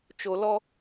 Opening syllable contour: low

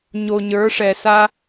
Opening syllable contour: low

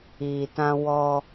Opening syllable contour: low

